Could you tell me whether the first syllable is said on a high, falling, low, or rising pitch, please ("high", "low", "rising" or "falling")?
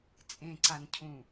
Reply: low